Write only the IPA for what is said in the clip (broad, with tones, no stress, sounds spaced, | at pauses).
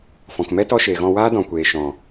f ɔ̃˨ k m ɛ˦ t ɔ˧ ʃ eː˨ ɣ ɔ̃˧ w aː˦ d ɔ̃˨ kʷ eː˨ ʃ ɔ̃˨